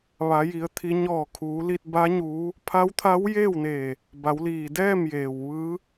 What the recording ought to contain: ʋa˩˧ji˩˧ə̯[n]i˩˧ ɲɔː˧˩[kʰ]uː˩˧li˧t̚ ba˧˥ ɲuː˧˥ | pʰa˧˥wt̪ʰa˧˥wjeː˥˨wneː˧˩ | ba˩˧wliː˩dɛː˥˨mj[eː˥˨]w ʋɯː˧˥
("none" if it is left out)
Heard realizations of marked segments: t̪ʰ, kʰ, eː˩

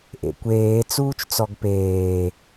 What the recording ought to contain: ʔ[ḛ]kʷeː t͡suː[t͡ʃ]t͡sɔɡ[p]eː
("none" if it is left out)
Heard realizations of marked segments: ḛ, t͡ʃ, p

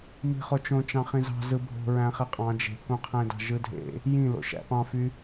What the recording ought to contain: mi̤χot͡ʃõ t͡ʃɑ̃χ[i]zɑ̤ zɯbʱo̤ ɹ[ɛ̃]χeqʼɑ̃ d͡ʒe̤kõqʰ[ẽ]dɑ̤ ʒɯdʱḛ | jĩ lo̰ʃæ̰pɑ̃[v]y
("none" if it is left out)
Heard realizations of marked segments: ĩ, æ̃, ẽ, f

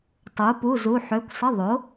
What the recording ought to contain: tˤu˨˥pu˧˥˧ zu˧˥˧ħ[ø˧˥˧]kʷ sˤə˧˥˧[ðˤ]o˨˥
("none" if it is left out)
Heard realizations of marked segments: ø˧˥˧, ðˤ

